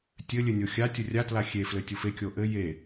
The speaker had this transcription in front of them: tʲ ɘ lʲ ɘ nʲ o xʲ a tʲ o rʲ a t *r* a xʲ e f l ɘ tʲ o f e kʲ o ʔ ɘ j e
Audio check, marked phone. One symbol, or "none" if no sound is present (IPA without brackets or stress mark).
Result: l